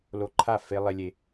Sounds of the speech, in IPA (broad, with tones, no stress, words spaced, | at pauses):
lo˧ǃʰa˦˨ fe˧ lˠe˦lʲe˧